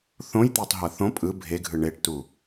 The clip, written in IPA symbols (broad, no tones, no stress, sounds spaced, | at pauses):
θ õ j t̪ e tˤ ɦ ɤ θ õ pʼ ɯ bʱ e ɡʱ ɯ ɳ e ʈ t u